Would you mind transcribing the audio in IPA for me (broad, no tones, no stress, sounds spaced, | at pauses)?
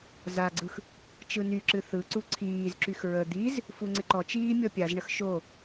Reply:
z a ɡ͡ǀ ɯ x | t͡ʃ ɯ n y ǁ ɨ θ ɯ ǀ u ǀʰ iː z ǁ y x ɹ ə d̪ i z | f u ŋ͡ǀ ɪ ǃ ɔ t͡ʃ iː mʲ ɔ pʲ a z ɳ ə x ʃ o